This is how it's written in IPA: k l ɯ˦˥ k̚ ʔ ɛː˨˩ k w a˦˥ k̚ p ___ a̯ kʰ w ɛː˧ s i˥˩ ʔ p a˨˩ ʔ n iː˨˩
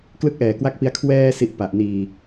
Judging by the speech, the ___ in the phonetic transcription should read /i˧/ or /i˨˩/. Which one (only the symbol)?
i˧